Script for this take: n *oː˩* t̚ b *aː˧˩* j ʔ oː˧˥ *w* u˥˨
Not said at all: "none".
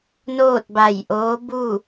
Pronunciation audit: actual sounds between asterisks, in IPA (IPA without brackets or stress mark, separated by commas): oː˥˨, a˧˩, b